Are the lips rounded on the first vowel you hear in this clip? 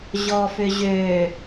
yes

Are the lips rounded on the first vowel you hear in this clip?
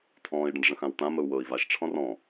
yes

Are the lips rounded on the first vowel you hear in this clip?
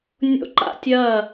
yes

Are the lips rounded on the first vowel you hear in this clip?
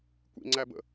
no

